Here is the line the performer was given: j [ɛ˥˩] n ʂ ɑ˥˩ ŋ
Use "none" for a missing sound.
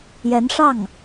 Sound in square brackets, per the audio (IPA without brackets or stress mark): ɛ˧˥